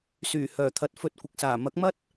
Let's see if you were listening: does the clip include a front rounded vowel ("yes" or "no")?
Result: yes